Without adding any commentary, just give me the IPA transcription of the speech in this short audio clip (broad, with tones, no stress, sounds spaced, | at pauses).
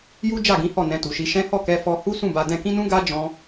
j u˦ d͡ʒ a˦˨ ɡ ĩ˨˦ h ɔ˦˨ n ɛ̃˧ t u˨ ʃ i˧ ʃ ɛ̃˦ h ɔ˦˨ k ɛ˧ f ɔ˧ h u˦ s ũ˦˨ b a˧ d ɛ̃˧ k ĩ˦ n ũ˦ ɡ a˦ d͡ʒ ɔ̃˦